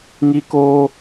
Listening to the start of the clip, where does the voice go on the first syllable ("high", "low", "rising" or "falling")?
high